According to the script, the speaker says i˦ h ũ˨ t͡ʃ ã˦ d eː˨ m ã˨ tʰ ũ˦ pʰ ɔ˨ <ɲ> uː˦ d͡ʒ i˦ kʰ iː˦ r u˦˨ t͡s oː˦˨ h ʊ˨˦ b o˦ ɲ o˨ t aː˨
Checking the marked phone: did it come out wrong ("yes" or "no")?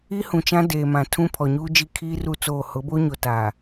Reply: no